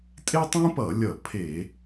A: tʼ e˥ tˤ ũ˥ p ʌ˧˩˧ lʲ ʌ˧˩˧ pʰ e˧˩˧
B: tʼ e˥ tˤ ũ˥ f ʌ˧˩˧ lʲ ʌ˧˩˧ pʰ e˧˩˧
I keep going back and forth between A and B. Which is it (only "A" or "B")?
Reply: A